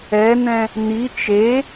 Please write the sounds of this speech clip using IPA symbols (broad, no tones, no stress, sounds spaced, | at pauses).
ɛ n̪ ɛ̃ | n̪ i t͡ʃ e